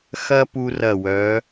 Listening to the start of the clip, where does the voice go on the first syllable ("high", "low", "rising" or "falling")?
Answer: high